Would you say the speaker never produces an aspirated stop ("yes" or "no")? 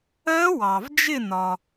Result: yes